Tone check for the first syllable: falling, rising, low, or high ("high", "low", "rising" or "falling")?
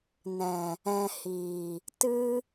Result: low